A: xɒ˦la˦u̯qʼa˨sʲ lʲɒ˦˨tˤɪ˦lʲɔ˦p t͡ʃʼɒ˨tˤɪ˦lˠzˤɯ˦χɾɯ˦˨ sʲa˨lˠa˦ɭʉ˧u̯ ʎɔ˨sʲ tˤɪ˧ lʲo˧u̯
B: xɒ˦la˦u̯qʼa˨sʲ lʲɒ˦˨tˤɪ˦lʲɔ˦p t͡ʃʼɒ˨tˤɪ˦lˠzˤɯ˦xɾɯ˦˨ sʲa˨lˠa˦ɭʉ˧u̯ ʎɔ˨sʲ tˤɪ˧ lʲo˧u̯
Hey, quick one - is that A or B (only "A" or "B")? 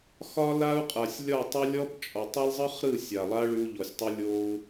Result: A